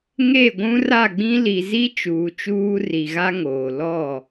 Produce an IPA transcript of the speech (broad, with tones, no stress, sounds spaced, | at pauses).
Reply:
ŋ e˦˨ ɡʷ ũ˦ r a˦˨ ɡ͡b ĩ˦ l i˨ z i˦ t͡ʃ uː˨ t͡ʃ uː˦ r i˨ ɣ a˦ ŋ oː˨ l ɔ˦˨